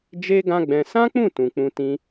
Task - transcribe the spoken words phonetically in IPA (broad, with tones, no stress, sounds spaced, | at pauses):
d͡ʒ e˦ ɡ ã˦ ɡ͡b ɛ̃˧ s ã˦ k͡p ũ˦˨ t ũ˨ k͡p ũ˧ t ĩ˧